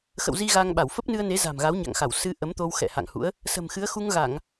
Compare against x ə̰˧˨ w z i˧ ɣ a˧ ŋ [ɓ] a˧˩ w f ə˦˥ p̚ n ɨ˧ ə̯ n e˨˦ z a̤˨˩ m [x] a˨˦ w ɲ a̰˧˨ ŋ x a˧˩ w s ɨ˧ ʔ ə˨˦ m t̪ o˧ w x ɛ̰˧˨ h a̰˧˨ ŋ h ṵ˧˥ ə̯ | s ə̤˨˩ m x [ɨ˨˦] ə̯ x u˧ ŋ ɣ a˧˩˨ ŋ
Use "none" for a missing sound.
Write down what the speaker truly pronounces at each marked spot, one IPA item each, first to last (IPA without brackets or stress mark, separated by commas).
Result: ɓ, ɣ, ɨ˨˦